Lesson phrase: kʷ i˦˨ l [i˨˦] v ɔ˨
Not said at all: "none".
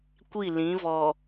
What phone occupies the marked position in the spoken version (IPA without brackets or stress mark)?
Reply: ĩ˨˦